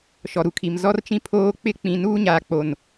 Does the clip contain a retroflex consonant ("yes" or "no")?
no